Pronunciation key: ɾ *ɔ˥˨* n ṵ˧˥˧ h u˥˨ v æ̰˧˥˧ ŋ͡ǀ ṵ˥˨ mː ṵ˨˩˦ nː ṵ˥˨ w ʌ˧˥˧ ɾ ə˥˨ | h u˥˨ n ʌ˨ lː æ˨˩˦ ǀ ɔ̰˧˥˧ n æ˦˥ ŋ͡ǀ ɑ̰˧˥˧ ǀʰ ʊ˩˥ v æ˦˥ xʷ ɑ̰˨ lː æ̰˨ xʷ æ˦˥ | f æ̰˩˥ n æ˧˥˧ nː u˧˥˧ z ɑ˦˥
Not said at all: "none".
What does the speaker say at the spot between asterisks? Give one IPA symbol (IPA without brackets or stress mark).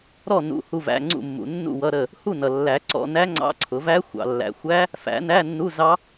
ɔ˥˨